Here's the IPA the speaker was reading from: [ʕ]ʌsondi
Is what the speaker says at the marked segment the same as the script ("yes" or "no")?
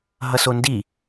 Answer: no